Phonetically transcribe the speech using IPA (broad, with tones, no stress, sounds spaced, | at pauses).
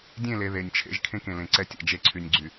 dʲ ẽ˦˨ l e˨ ð e˨ nʲ t͡ʃʰ ḛ˦ ʒ kʰ ẽ˦ k ẽ˨ l ẽ˨ ǀ ɛ˦ tʲ ɛ̰˨ d͡ʒ e˦ ǀʰ y˨ nʲ ɡ͡ǀ y˨